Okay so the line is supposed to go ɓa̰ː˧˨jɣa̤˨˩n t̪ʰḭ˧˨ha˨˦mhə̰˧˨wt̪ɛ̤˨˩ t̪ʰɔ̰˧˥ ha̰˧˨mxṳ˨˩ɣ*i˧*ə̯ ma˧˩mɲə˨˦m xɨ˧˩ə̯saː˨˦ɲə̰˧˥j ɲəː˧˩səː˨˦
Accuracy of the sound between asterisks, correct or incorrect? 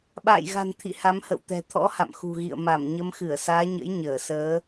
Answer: incorrect